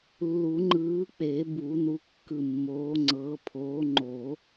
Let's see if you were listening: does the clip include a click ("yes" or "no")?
yes